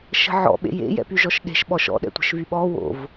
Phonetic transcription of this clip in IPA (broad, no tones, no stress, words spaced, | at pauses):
ʃə̤ʕɔ̰ ɓḛjḛ jɛ̰pyʒɔʃɗe̤ʃ ɓɔʃɔ̰ ɗɛ̰tʷə̤ʃvyɓɔ wo̰v